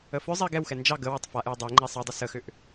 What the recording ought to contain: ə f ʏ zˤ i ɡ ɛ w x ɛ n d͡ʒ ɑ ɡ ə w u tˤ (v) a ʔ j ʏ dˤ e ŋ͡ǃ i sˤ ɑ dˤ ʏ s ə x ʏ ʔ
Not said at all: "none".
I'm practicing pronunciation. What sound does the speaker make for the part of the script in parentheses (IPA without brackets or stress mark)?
f